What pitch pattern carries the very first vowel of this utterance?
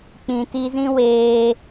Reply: low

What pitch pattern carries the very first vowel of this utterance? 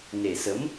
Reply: low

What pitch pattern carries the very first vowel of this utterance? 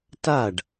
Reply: falling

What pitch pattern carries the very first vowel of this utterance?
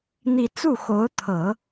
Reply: falling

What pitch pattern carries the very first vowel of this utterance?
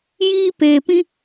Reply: high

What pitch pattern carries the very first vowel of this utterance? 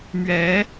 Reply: rising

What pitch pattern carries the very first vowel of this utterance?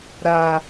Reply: low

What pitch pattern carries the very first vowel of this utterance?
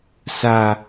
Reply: low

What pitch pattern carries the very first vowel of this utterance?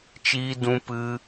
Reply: high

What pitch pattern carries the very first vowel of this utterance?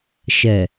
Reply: low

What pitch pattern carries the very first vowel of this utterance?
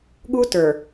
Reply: high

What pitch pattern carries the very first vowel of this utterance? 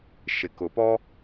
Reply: low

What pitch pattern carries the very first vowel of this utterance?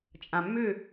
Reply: low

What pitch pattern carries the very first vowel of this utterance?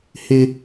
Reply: high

